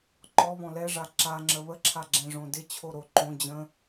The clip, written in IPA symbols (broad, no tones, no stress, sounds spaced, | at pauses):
ǃ ɔ β ɔ̃ l ɛ ʐ a ǁ a ŋ͡ǁ ə β ə ǁʰ a ɡ͡ǁ ɛ̃ ʐ õ d ɪ t͡ɕʰ o ɾ o ǃ õ d͡ʑ ə̃